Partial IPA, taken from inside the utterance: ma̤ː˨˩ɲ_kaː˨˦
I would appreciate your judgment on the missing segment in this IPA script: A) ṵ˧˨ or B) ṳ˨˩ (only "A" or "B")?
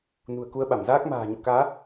A